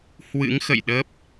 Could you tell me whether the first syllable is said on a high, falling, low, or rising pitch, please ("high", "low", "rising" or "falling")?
rising